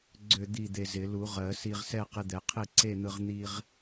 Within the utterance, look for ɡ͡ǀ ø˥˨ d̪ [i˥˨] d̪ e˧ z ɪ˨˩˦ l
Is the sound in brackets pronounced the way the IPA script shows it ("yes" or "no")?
yes